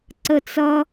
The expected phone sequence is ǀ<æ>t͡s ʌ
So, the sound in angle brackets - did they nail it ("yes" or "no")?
no